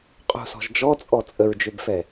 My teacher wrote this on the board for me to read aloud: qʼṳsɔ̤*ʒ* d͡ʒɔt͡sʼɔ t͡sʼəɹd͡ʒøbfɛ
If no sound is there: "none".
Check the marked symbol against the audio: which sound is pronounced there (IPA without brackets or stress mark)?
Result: ʒ